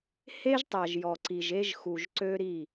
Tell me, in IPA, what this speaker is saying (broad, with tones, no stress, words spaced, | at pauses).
he˦ʒtˤa˨ʒ jɔ˨ǀi˨ʒe˦ʒ xu˨ʒǀø˦ɾi˦˨